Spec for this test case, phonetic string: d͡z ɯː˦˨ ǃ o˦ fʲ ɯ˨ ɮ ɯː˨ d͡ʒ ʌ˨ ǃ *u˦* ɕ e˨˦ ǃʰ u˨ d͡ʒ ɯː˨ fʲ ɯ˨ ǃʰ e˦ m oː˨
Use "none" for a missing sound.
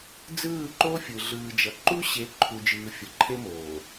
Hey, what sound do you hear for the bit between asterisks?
u˦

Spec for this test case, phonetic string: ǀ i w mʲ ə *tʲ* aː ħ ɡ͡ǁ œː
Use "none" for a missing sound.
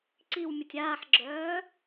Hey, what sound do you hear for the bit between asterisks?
tʲ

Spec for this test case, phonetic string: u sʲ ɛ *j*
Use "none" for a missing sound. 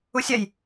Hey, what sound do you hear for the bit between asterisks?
j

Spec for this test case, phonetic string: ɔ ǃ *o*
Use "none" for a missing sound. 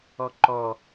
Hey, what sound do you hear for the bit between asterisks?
ɔ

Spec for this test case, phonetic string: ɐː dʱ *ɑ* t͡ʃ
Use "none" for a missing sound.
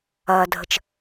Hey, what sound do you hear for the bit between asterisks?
ə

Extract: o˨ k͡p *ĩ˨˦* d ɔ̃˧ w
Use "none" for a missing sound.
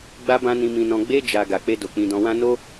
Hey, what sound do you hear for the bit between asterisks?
ĩ˧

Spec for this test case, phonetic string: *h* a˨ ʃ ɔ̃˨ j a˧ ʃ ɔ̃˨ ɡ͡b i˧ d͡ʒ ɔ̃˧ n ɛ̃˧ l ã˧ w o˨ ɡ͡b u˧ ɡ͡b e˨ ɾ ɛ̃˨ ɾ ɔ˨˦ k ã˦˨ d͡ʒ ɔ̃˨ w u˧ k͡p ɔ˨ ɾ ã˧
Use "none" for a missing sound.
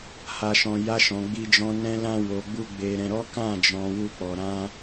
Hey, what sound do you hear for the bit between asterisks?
h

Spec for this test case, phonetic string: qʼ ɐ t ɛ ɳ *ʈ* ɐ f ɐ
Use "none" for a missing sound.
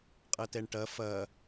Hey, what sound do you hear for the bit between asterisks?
ʈ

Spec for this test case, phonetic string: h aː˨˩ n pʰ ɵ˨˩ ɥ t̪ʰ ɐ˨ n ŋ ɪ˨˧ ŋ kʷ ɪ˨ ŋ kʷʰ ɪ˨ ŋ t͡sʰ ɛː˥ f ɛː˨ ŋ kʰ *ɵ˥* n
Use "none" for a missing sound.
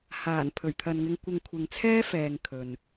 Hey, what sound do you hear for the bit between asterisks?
ɵ˨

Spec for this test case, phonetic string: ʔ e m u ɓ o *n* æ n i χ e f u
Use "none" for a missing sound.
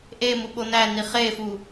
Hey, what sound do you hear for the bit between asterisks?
n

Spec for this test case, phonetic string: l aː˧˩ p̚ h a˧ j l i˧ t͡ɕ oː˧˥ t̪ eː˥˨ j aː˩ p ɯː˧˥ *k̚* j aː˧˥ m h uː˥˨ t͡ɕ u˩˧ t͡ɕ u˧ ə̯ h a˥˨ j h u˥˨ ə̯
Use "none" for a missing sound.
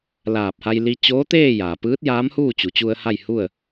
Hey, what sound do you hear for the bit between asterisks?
t̚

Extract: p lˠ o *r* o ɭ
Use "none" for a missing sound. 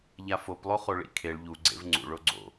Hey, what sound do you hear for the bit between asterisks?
χ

